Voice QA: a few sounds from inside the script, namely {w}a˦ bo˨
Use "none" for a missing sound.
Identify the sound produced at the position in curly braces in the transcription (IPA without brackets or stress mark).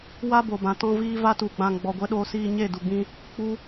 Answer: w